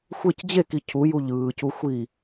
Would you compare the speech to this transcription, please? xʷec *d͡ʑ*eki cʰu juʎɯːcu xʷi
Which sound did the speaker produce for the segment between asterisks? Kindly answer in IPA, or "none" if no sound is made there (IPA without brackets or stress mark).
d͡ʑ